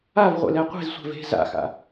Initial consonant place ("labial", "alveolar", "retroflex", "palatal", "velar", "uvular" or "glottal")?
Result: labial